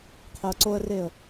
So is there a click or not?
yes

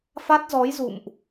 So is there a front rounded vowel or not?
no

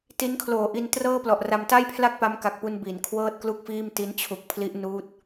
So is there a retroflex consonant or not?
no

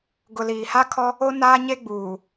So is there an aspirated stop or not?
yes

